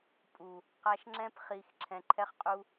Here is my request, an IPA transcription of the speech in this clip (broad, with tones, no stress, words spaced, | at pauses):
pʼu˨ | qa˧ʃŋ͡ǁɛ̃˦p χi˧x ǁʰɛ̃˧ǃʰɛ˦χqʼu˦